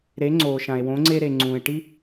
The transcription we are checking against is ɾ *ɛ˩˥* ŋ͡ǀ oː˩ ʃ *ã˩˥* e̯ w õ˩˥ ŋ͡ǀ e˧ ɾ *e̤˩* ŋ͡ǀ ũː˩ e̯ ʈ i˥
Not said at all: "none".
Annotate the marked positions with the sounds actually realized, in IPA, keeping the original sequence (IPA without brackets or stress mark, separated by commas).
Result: e˩˥, ã˩, e˩